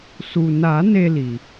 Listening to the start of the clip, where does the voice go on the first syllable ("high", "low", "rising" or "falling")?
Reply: low